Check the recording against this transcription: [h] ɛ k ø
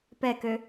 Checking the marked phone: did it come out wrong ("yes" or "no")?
yes